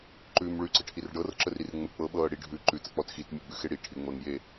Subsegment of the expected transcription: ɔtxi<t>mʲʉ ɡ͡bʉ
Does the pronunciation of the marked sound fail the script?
no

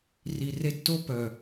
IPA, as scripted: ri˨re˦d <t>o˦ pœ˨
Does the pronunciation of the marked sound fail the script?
no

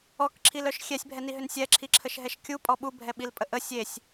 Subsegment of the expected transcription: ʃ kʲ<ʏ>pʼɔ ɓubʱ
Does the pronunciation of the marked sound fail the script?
yes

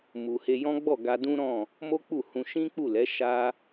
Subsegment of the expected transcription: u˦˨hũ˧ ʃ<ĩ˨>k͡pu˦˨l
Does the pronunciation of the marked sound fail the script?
yes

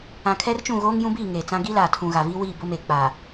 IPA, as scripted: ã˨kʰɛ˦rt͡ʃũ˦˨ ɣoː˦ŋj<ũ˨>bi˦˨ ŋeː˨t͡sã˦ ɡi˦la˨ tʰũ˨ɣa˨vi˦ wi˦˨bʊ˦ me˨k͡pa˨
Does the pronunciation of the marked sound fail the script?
yes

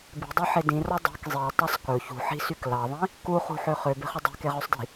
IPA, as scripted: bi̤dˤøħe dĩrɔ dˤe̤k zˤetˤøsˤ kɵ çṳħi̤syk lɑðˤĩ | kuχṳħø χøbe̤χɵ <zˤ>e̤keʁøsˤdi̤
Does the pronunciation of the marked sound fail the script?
yes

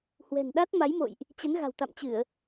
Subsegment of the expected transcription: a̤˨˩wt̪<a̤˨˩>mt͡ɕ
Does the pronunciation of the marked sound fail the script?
yes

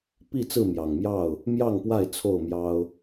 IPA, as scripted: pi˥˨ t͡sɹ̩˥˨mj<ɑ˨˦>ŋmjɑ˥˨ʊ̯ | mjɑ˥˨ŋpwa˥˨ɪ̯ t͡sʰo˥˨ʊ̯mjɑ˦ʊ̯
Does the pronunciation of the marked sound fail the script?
yes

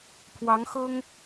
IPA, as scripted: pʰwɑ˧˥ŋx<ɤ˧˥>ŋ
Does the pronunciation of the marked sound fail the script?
yes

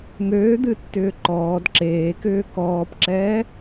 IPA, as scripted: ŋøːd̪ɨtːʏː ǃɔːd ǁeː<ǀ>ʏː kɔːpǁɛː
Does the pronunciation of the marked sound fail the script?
yes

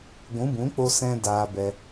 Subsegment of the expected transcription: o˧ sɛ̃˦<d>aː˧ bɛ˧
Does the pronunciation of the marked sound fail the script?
no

